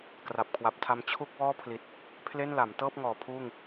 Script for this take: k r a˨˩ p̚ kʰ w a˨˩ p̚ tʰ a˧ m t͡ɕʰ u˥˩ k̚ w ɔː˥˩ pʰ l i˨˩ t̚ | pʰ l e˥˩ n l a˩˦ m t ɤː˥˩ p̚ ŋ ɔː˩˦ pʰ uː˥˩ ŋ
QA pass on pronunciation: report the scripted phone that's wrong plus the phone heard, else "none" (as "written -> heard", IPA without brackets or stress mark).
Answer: none